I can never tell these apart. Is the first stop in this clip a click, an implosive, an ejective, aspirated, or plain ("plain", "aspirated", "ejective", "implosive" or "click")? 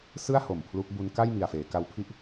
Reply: aspirated